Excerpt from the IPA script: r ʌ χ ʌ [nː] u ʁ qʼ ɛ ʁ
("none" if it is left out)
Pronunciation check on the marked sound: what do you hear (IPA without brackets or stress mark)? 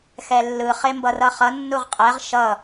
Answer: nː